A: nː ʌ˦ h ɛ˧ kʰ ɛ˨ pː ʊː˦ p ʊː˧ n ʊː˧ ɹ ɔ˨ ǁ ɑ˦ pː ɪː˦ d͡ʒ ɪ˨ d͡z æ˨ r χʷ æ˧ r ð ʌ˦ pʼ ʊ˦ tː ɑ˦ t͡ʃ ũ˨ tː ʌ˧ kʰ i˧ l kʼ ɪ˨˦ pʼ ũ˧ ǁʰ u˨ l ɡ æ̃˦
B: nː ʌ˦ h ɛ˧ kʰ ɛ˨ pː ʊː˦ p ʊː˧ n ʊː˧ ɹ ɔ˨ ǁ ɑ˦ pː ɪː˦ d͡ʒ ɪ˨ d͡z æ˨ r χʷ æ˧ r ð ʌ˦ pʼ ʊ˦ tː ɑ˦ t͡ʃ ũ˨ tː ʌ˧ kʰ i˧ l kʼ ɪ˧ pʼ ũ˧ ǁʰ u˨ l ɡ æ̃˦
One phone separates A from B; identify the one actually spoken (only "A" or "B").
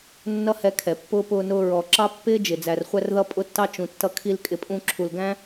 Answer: A